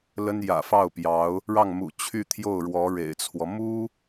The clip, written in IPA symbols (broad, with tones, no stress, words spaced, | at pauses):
lə˥njä̰˨˩fɑ˥˩ʊ̯ pjɑ˧˥ʊ̯ | ɻɑ˥˩ŋmṵ˨˩ t͡ɕʰy˥˧ t̪ʰjo˥˩ʊ̯ɻwɔ˧˥ ɻḛ˨˩ɪ̯t͡sʰwɔ˦ mu˥